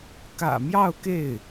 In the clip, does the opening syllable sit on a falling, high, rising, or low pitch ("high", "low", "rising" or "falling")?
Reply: low